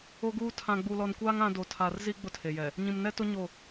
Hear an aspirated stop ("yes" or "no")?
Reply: yes